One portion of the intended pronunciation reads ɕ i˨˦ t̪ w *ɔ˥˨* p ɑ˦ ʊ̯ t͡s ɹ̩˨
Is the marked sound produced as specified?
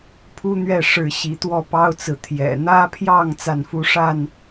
yes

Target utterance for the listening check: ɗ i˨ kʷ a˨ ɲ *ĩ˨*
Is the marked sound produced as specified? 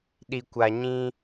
no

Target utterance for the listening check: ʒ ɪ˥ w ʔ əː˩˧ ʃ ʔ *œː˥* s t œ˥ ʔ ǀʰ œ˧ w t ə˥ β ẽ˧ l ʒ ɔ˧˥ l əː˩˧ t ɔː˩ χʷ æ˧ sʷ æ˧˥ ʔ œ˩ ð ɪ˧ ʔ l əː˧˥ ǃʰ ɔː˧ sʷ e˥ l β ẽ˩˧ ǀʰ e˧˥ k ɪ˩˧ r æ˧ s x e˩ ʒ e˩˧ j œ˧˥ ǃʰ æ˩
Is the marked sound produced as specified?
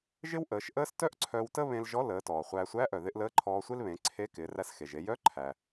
no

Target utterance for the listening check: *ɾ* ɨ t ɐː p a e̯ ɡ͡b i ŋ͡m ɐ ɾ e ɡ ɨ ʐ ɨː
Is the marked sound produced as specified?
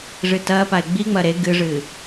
no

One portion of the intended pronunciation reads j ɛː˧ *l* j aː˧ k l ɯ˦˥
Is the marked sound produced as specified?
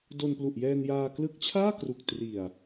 no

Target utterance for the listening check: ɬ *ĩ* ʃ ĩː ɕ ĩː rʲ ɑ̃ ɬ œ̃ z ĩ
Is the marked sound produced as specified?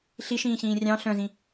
no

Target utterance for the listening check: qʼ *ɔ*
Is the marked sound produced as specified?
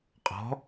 no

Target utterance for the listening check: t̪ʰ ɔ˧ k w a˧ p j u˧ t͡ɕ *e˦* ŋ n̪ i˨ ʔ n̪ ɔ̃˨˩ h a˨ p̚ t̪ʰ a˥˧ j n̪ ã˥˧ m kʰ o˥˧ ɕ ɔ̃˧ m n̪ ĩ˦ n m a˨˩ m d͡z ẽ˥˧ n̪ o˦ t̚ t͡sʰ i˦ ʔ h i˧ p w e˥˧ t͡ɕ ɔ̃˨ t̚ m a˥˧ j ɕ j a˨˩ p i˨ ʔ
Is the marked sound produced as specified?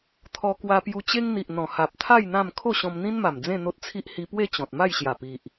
yes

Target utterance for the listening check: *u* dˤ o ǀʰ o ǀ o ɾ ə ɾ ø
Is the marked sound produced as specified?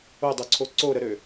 no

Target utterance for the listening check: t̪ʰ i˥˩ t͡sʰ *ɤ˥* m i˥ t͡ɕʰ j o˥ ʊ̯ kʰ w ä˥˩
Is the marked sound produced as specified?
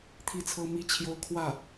yes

